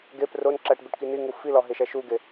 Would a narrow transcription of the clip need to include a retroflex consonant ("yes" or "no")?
yes